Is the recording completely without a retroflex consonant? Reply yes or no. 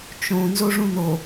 no